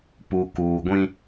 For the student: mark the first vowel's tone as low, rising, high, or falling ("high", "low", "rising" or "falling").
low